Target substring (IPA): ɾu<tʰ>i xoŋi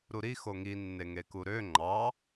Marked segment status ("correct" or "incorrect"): incorrect